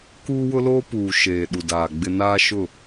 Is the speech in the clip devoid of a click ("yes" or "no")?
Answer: yes